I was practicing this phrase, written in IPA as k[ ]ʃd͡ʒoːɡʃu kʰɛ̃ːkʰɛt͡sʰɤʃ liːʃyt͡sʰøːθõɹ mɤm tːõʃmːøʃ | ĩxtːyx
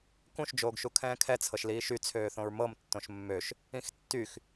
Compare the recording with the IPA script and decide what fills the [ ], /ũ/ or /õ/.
ũ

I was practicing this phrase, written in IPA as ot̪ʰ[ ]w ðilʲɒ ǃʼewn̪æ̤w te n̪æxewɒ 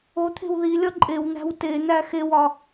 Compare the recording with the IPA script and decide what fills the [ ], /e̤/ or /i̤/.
e̤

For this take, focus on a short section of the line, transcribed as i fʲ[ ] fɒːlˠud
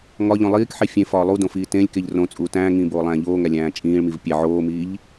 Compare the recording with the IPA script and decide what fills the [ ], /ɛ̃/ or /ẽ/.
ẽ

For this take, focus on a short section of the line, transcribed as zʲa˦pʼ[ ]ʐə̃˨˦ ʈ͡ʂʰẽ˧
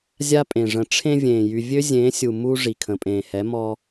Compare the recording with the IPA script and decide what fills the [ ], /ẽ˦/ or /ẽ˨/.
ẽ˨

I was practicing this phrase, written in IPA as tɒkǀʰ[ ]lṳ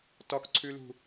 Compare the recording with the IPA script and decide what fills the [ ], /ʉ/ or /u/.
ʉ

